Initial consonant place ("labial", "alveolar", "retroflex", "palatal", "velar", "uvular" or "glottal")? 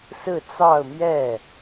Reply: alveolar